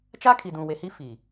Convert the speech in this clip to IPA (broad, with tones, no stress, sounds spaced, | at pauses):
t͡ʃ a˦ kʰ i˨ d ũ˨ w e˨ h i˦ f iː˨